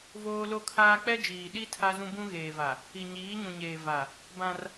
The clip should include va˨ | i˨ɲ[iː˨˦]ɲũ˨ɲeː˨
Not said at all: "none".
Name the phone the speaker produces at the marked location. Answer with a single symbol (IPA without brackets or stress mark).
iː˨˦